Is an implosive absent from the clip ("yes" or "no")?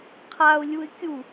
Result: yes